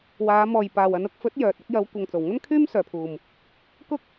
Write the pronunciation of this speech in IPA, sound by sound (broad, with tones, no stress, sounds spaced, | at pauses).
w aː˨˧ m ɔː˨ j p aː˨ w ɐ˨˧ n ʊ˨˥ k̚ f ɵ˨˥ t̚ j œː˨ t̚ ɐ˧ k̚ j ɐ˨˧ w kʷ ɐ˨ ŋ t͡s o˨˩ w ŋ ɐ˥ n kʰ yː˥ m s œː˨ pʰ uː˨ m | k ʊ˥ k̚